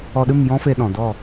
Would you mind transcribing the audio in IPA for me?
ɔ˧ ɗ ɨ˦˨ m j ɔ̃˦ f e˧ ɗ ɔ̃˨ d ɔ˦˨

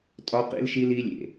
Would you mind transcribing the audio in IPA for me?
tʼ ɒ˦ q ḭ˦ l ʃ i˦ l i˦ lʲ ḛ˨

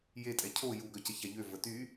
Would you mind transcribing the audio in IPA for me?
j e tʼ ɛ cʰ o j u ɡ œ c ə ç a ʎ ø v ə t y

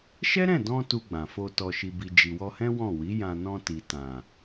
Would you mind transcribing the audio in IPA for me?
ʃ ɛ˦ ɾ ɛ̃˦˨ d ɔ̃˧ t u˧ ɡ͡b ã˨ f o˧ t ɔ˨ ʃ i˨ b i˨ d͡ʒ i˨ w ɔ˧ h ɛ̃˦ w ɔ̃˦˨ w i˨˦ j ã˧ n ɔ̃˧ t i˨ t ã˨

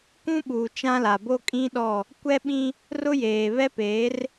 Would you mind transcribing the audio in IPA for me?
k ũ˦ ɓ uː˨ t͡ʃ ã˦ l a˨ b o˦ kʼ ĩ˦ ɗ ɔ˦˨ | kʷ ɛ˦ ɓ ĩ˦ | r ʊ˦ j eː˨ β ɛ˦ p eː˨˦ r

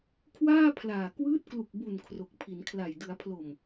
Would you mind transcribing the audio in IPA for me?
kʰ w aː˥˩ pʰ l aː˨˩ k w ɯː˦˥ t̚ k l u˨˩ k̚ b u˨˩ n kʰ r o˨˩ k̚ pʰ i˩˦ n kʰ l a˨˩ j d ɯ˩˦ a̯ pʰ l o˨˩ m

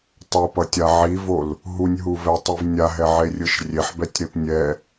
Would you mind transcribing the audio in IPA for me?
tˤ o p ʌ tʲ a ʕ i v o l | ɦ u nʲ ɦ u v ɛ tˤ i v nʲ a ɦ ɛ ʕ e rʲ ɯ ʃ rʲ e ħ b ɛ tʲ ɾ e p nʲ ɛ

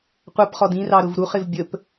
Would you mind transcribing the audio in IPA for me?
qʷ ʌ p χ ɔ d ĩ r ɑ ɾ ʊ v ɾ u χ ɪ v bʲ ə p

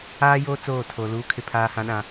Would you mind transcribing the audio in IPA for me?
aː˦ j oː˦ t͡s oː˦˨ tʰ o˨ l uː˨ kʰ ɪ˨ pʰ aː˨ h ã˨ ɗ ã˨

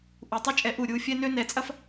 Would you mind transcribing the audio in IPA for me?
ʔ u˨ tˤ ə˦ t͡ʃʼ ɛ˨˦ ʔ u˨ ɾʲ u˧ fʲ ɛ˦ n ø˦ n ɛ˨˦ t͡sʼ ɐ˦ f

